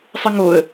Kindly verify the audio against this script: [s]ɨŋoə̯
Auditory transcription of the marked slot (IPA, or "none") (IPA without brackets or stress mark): sˤ